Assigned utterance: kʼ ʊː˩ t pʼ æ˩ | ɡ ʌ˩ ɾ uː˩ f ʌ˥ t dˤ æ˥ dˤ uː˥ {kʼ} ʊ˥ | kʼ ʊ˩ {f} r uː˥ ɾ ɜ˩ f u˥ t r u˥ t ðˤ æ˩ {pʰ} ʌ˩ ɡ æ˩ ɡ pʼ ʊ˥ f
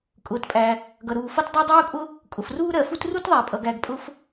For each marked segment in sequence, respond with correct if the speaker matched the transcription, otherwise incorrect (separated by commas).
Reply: correct, correct, incorrect